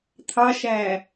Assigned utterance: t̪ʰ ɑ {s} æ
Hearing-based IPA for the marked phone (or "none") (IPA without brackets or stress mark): ʃ